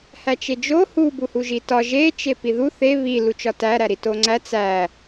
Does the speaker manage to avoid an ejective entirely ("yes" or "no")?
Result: yes